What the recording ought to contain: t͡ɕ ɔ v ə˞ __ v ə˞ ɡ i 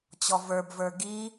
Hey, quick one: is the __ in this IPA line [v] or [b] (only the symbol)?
b